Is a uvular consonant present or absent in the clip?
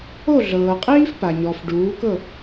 present